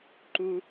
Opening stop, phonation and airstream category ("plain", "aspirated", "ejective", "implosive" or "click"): click